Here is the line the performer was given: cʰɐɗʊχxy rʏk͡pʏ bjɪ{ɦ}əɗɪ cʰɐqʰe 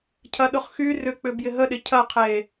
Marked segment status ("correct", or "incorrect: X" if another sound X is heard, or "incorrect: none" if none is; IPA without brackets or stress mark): correct